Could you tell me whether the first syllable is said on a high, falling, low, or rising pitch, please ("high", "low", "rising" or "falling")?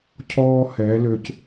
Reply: high